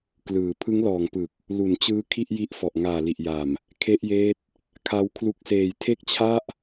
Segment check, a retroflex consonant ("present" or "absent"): absent